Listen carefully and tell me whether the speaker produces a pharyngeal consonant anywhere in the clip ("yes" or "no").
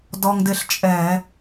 no